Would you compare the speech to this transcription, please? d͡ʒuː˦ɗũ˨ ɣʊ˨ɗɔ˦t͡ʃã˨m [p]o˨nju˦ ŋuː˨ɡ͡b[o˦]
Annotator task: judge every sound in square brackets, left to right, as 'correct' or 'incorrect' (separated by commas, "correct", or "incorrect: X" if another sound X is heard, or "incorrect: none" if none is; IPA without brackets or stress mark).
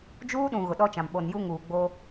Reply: incorrect: ɓ, correct